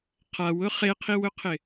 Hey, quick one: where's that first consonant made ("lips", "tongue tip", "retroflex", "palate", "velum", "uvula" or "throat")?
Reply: uvula